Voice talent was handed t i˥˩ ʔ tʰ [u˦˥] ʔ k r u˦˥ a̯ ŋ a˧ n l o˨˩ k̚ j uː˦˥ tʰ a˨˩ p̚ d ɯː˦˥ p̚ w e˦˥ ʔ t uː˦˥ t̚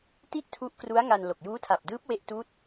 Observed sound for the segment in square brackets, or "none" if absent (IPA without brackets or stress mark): u˦˥